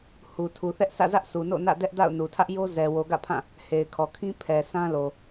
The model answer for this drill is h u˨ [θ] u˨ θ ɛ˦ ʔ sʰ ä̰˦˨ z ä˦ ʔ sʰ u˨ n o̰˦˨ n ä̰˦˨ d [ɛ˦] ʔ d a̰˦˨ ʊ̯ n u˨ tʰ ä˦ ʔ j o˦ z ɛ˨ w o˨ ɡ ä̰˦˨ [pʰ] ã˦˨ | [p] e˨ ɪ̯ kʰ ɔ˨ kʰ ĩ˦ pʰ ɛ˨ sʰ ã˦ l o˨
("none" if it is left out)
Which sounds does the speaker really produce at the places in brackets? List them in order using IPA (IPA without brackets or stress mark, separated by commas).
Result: tʰ, ɛ˦, pʰ, h